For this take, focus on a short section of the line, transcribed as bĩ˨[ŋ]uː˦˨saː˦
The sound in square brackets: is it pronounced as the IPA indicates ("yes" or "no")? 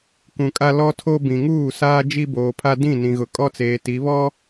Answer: yes